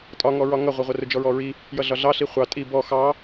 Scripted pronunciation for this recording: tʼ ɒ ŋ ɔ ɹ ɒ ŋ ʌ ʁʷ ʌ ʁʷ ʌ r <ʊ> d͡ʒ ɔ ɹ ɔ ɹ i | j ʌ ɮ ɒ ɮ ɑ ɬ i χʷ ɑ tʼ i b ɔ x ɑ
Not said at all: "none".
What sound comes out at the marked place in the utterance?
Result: ʊ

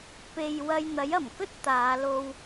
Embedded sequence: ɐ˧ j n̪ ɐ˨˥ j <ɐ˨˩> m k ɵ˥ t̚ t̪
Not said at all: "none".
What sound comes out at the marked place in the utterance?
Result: ɐ˨˩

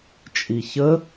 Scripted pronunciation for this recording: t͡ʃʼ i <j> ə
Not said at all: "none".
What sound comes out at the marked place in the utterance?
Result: ç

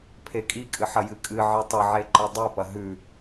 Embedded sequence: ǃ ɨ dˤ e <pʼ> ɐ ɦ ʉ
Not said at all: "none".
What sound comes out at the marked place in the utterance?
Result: p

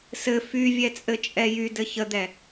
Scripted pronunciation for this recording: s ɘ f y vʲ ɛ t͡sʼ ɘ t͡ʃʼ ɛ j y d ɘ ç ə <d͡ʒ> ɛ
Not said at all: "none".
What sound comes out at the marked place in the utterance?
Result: d̪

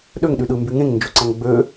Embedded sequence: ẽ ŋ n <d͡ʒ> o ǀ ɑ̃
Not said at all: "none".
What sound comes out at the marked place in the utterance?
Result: d͡ʒ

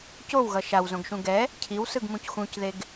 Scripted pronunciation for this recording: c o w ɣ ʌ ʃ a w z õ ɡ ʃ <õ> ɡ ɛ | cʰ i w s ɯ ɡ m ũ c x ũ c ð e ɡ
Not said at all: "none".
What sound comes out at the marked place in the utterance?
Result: ũ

